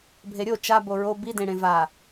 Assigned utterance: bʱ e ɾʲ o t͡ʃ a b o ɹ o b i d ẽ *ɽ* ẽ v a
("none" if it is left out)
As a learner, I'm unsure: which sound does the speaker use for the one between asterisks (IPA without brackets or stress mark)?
ɽ